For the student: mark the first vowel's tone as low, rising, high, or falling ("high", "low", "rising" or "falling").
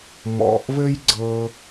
low